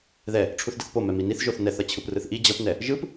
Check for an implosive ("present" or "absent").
absent